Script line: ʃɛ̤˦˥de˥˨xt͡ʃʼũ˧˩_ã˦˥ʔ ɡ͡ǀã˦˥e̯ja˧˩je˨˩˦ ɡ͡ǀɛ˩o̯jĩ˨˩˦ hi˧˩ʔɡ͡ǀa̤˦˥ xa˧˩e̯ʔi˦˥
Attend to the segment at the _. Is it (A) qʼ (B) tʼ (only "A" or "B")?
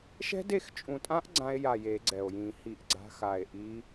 B